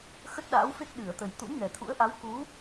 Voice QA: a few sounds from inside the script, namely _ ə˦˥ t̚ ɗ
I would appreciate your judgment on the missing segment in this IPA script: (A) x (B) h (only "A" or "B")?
A